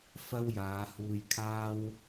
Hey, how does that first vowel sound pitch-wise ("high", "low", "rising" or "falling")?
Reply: high